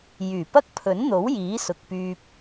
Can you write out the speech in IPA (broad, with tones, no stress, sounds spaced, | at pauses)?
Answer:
j yː˨˩ p ɐ˥ k̚ pʰ ɵ˨˥ n n̪ o˨˥ w j iː˨˥ s ʊ˨ k̚ p yː˧ p̚